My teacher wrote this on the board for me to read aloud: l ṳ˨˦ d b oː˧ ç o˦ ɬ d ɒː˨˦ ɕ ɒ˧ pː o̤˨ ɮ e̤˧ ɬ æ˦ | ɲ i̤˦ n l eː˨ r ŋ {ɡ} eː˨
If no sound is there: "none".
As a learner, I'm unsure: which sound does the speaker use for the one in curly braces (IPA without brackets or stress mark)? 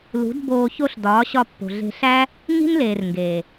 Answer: ɡ